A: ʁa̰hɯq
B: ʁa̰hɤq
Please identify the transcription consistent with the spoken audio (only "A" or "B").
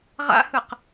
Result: A